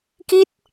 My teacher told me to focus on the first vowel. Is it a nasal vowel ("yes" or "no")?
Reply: no